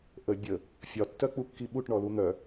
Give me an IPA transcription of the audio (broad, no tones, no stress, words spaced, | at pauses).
ʔə bʲə | fʲɒtːœk͡pukːi ɓuʈɳɔlu n̪œ